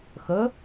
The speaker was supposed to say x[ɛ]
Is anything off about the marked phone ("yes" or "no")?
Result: yes